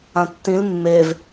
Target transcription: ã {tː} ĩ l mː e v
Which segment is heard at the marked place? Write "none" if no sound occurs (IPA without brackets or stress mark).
tː